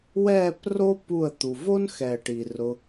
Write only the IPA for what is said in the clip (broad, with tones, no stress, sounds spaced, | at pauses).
w ɛː˦˨ p r o˦ p u˦˨ ə̯ t̪ u˨ v o˦ n x ɛː˨ ʈ i˨ r ʊ˧